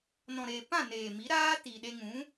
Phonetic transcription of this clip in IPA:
n ɔ̃˨ ɾ eː˨ p ã˦˨ n eː˨ m i˨˦ ɾ aː˦ t i˨ ɗ e˧ ŋ ũ˨˦

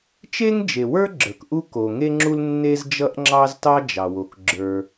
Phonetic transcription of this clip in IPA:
t͡ʃ e˥ ŋ d͡ʒ e˩ w ə˞˥ ɡ͡ǁ ə˞˩ k ʔ u˥ k o˩ ŋ e˥ ŋ͡ǁ u˥ l nː e˥ z d͡ʒ ʌ˥ ʔ ŋ͡ǁ ɑ˥ z t ɑ˥ d͡ʒ ɑ˩ w o˩ k ɡ͡ǁ ə˞˩

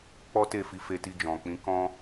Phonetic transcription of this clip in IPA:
k͡p ɔ˦ t e˦˨ f i˧ f e˧ t i˧ d͡ʒ ɔ̃˨ k͡p ĩ˨˦ k ɔ̃˦

